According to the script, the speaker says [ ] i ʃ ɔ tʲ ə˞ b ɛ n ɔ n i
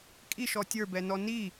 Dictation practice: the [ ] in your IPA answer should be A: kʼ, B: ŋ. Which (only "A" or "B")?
A